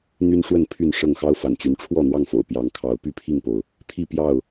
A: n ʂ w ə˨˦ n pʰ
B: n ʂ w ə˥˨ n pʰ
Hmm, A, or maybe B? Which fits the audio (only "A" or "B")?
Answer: B